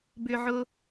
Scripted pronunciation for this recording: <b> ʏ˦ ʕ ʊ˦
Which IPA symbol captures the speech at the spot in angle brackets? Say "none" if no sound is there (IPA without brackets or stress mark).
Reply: b